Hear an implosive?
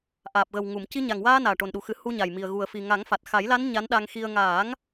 yes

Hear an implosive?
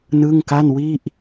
no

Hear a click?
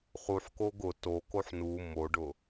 no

